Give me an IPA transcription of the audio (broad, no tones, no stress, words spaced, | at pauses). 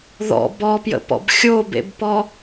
ðɔ̰ bɔpjə̰pɔ̰b xʲobḛbpɔ